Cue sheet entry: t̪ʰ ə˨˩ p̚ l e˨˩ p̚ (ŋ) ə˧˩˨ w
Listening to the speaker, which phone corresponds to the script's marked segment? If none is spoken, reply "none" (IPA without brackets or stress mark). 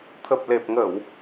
ŋ